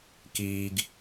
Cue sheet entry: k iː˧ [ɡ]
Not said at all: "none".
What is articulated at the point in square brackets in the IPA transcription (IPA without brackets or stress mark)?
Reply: ɡ